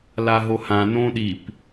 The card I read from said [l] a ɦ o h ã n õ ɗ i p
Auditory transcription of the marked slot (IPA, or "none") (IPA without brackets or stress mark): l